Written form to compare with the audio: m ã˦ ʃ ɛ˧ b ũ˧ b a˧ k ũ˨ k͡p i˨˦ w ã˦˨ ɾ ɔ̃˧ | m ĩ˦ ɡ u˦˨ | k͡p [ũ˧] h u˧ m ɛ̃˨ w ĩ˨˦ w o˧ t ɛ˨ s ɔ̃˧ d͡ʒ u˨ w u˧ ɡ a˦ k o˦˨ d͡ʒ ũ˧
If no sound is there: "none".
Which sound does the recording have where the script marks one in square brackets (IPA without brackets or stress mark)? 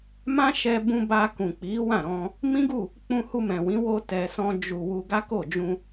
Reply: ũ˧